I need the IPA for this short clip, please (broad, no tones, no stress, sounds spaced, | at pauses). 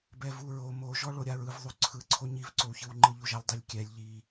b ɛ v u ɹ o m o ʒ ɔ ɭ o ɾʲ a ɹ ɯ v ðˤ u ǀʰ ɯ ǀʰ o ɲ i v ǀ o w ç ɯ w ŋ͡ǃ ɯ ʎ u ʒ a lʲ dˤ e lʲ kʲ ɛ lʲ ʎ i